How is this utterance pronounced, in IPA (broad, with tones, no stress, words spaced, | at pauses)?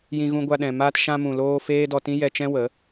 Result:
jĩ˧ɣũ˧ɡʷa˧ɗɛ̃˨ maː˧tʃã˧mũ˨loː˧ feː˦dɔ˧tĩ˦ jɛ˧t͡ʃɛ̃˦wə˨˦